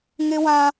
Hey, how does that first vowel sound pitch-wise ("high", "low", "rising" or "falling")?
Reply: high